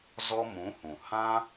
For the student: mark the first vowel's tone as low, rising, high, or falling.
high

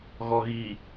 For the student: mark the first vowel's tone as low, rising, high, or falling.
low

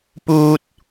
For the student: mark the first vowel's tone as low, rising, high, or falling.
high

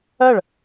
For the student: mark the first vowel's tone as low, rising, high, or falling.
falling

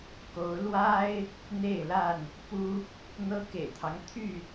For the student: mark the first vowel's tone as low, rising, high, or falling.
rising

